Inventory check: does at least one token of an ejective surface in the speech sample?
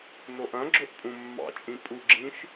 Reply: yes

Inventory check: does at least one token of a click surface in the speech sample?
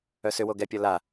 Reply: no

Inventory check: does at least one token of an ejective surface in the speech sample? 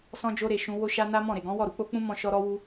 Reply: no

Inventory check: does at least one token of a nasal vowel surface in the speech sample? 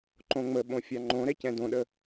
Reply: yes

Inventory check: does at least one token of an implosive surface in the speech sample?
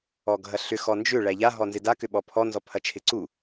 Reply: yes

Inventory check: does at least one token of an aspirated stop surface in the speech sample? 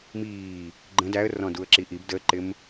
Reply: no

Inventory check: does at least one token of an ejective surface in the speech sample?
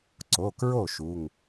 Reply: no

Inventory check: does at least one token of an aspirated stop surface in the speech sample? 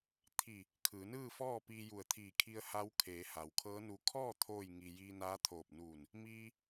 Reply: yes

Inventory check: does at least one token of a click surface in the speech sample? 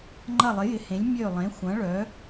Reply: yes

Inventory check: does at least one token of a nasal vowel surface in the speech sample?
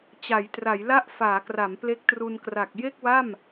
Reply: no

